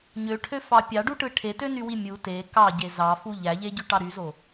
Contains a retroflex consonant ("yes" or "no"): yes